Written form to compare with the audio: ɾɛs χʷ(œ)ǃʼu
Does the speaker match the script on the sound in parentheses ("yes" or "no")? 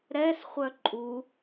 yes